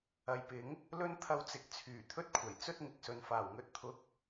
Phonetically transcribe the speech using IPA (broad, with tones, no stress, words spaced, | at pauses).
ɐ˨˧jpɪ˨˥ŋ | lɵ˥n t̪ʰɐ˧wt͡sɪ˨k̚ t͡sʰyː˨˩t̪ʰɵ˥t̚kʷʰɐ˨˩j t͡sɵ˥t̚ŋɪ˨k̚sɵ˨n faː˨˩wŋɵ˨˥t̚t̪ʰʊ˨˥k̚